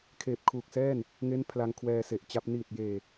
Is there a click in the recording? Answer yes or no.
no